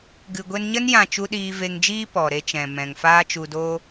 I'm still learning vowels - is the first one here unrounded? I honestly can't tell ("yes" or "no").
yes